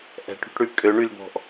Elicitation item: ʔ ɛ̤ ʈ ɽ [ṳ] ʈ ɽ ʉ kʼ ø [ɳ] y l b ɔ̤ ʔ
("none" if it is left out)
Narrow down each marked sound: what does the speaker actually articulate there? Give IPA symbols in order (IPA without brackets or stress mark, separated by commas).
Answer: ṳ, ɳ